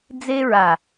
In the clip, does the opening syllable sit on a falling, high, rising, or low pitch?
high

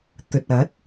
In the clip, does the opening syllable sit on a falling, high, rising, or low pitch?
low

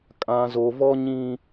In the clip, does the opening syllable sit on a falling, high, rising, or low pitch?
low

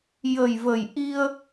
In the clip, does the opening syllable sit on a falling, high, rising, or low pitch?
low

